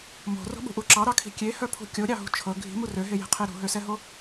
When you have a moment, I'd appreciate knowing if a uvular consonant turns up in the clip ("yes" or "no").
yes